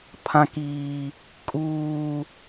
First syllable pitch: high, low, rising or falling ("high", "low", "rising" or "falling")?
high